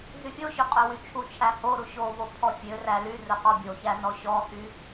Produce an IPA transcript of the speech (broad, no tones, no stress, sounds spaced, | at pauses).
z y fʲ o ɕ ø qʼ ɵ w y t͡ʃʰ u t͡ʃʰ æ h o ɾ u ɕ o v o pʰ ɔ fʲ ø r æ l y r ɵ q ɔ bʲ o ç æ n ɔ ɕ ɔ h y